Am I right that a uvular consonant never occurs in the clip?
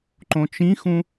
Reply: yes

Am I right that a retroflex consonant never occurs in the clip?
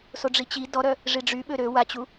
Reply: no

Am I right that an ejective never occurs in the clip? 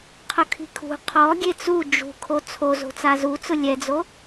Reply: yes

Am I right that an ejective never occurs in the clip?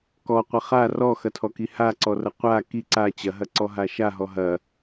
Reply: yes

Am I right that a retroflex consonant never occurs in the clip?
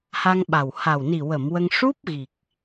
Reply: no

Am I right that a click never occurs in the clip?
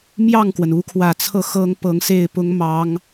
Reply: yes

